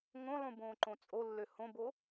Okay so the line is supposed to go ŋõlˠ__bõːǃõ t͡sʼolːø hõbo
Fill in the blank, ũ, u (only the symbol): ũ